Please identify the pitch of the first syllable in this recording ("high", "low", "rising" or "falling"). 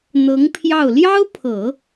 rising